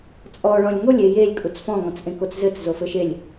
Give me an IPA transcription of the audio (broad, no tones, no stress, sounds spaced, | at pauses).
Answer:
t͡sʼ ɔ ɭ ɔ̃ lʲ ŋ o lʲ e j e lʲ kʼ u t͡s f ɔ̃ ŋ ɔ̃ t͡s ʔ ẽ k o t͡s z ɘ t͡s z o f ɘ ʃ e lʲ